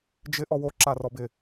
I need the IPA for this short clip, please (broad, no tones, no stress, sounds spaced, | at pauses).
d͡ʒ ɪ ʔ ɔ w o ǁ a r ɔ b ɪ